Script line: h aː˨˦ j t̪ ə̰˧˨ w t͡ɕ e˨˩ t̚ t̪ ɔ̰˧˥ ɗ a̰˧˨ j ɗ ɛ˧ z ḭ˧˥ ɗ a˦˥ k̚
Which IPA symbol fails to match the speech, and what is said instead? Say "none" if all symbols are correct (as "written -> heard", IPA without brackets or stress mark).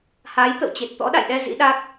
none